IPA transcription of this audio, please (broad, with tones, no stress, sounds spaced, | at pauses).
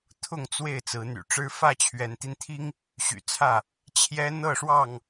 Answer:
t̪ʰ ʊ˥˨ ŋ t͡s w e˥˨ ɪ̯ t͡s ɹ̩˨˦ n̪ y̰˨˩ ʈ͡ʂ ɻ̩˦ f ä˥˨ t͡ɕʰ ɥ ɛ˨˦ n t̪ i˧ n t̪ʰ i˦ ŋ | ɕ y̰˨˩ t͡sʰ ä˥˨ | t͡ɕʰ j ɛ˦ n̪ ɤ˥˨ ʂ w ɑ˥˨ ŋ